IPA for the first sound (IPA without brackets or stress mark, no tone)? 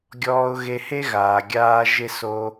ɡʲ